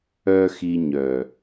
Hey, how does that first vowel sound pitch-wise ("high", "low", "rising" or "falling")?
high